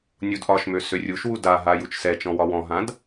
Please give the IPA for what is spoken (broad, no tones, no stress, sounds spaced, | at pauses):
nʲ u d ʔ ɒ ʃ m ø s ø rʲ u ʃ w u d a ɦ a j u t͡ʃ s ɛ t͡ʃ ɔ̃ w ɒ w ɔ̃ ɦ ã d